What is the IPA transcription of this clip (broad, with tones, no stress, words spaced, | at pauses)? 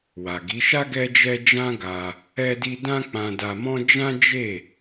wa˨ɡi˨˦ ʃa˦ ɡɛ˦d͡ʒɛ˦ d͡ʒã˦ɡa˧ | ɛ˧di˧ dã˦k͡pã˧da˧mɔ̃˦ d͡ʒã˦d͡ʒe˦˨